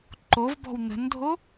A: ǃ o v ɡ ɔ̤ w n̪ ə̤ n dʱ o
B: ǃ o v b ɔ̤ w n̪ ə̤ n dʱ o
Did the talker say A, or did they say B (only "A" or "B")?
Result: B